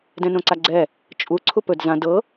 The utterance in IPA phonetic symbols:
dɛ̃nõǀaɡ͡ǀɛ | t͡ʃʼu ǀʰupɵd zã dɤ

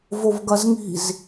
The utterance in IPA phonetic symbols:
vovɡɐzŋi̤z

